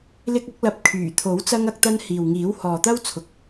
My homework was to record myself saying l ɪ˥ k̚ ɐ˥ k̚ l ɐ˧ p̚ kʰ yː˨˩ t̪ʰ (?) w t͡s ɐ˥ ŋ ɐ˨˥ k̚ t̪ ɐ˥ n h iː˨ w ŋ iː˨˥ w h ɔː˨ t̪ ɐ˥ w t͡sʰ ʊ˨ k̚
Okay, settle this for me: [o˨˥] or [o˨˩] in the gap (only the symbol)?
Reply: o˨˥